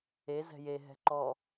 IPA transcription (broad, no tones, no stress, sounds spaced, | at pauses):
e z ɛ̤ j e ɦ ɛ̤ ǃ ɔ